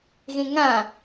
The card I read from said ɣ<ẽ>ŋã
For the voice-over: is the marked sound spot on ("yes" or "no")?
yes